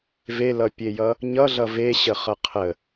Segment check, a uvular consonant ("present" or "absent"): present